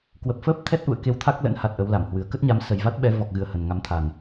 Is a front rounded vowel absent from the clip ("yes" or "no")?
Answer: yes